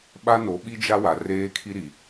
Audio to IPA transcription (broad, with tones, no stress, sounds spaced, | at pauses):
ɓ a˦ n o˨˦ ɓ i˦ d͡ʒ a˦ w a˨ r eː˦ kʰ i˦ ɾ i˨